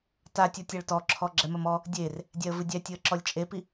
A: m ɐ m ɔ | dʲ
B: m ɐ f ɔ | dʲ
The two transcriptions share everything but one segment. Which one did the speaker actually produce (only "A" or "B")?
A